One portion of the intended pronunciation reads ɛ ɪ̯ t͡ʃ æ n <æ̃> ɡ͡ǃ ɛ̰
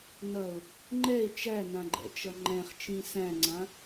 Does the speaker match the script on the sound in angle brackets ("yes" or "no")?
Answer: no